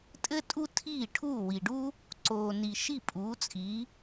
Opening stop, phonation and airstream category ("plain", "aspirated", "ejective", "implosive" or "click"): ejective